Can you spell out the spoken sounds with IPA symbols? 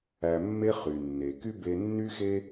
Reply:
æ˧ mː e˦ χ y˨ nː e˨ k y˦ b e˧ nː y˦ x e˦

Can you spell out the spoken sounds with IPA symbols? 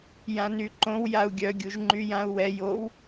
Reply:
j ã n y ǃ õ w j a u̯ ɡʲ œ ɡʲ u ʒ ŋ͡ǃ y j ã u̯ w ɛ j o w

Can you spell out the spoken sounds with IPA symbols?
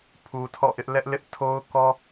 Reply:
pʰ u˨ tʰ ɔ̰˦˨ ʔ ɪ˦ ʔ l ɛ˦ ʔ l ɪ˦ ʔ tʰ o˦ ʊ̯ k ɔ˦

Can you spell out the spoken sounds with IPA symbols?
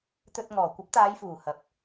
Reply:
t̪ ɵ˧ t̚ ŋ ɔː˨˩ kʷ ɐ˨˥ p̚ t̪ aː˨˧ j f uː˨˩ h ɐ˨ p̚

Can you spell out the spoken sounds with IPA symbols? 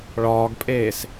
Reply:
ɭ ɒː ɡ pʼ eː s

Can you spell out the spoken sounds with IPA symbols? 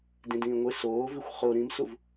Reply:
d ĩ d ĩː ŋʷ ɪ s oː v i xʷ χ o ɾ ĩ m s u v

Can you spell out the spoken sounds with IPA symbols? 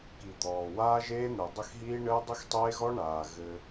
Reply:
k i˨ d̪ ɔː˨ w aː˦ ʒ eː˦ n̪ ɘː˨ dˤ ɘ˦˨ x ɦ iː˦ ɳ ɘː˦ dˤ ɘ˦ x tˤ eː˦ ɣ ɔ˦ ɳ aː˨ ɣ ɘ˦

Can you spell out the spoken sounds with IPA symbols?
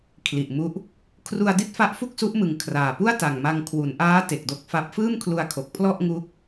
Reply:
kʰ l i˨˩ ʔ m u˦˥ ʔ | kʰ r u˧ a̯ d i˥˩ t̚ f a˦˥ ʔ f u˥˩ k̚ s u˦˥ ʔ m ɯ˨˩ ŋ kʰ r aː˨˩ p u˥˩ a̯ t a˨˩ ŋ m a˧ ŋ kʰ w u˩˦ n ʔ aː˦˥ t e˨˩ k̚ d o˦˥ k̚ f a˦˥ p̚ f ɯː˥˩ m kʰ l u˧ a̯ kʰ o˨˩ k̚ pʰ l ɔ˥˩ ʔ ŋ u˦˥ k̚

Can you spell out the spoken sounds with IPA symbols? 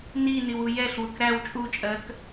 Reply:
n i n i w u j ɛ ɬ w ʊ k ɾ æ w t͡ʃʼ u t͡ʃʼ ɜ k

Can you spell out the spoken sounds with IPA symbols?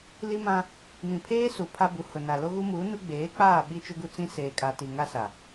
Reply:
l i˦ m ã˦ | m ĩ˨ pʰ eː˦ s u˨ pʰ a˦ b u˨ h ʊ˨ n a˨ l o˦ ɣ u˦ m uː˨˦ n u˦ ɡ͡b eː˨˦ k͡p aː˦˨ ɓ i˦ t͡ʃ ʊ˦ ɡ u˦ t͡s ĩ˦ s eː˨ kʼ a˨ t i˨ ŋ a˦ s a˨

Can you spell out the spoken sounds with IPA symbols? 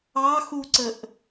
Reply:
ɑ x u ǀ ə ʔ

